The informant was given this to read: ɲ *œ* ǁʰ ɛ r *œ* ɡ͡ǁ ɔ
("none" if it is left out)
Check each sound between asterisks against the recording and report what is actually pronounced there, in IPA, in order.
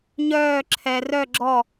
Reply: œː, œ

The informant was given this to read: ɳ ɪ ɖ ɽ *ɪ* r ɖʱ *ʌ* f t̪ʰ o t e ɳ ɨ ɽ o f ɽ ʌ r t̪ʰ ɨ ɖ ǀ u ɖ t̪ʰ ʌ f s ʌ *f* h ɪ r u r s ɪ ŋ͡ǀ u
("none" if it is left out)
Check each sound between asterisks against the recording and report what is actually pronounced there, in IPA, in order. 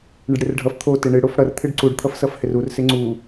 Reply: ɨ, ʌ, f

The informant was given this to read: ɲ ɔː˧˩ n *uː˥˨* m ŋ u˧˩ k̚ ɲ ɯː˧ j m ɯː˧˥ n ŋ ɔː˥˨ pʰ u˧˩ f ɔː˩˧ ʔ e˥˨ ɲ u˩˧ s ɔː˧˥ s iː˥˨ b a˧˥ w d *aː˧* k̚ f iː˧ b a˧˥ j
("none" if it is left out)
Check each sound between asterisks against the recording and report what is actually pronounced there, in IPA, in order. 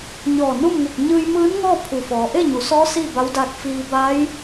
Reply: u˥˨, aː˧

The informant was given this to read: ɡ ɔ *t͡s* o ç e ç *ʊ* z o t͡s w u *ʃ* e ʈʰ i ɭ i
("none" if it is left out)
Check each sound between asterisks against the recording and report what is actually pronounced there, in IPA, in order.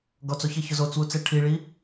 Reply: t͡s, ʊ, t͡s

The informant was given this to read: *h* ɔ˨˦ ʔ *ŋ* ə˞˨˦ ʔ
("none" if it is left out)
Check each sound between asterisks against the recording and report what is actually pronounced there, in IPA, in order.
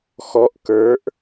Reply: x, k

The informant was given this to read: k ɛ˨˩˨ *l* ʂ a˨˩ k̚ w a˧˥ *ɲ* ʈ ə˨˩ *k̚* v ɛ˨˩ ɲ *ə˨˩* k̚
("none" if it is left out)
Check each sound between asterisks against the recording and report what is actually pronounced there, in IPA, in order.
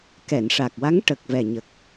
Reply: n, ŋ, k̚, ə˨˩

